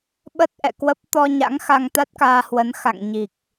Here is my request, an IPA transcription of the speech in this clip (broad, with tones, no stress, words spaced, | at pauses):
ɓə˦˥t̚ ʔɛ̰˧˨kwə˦˥p̚ t̪ɔ˧ɲa̰˧˥ŋ xa˧ŋt̪a˦˥t̚kaː˧hwə˨˦n xa̰˧˨ŋɲi˨˩k̚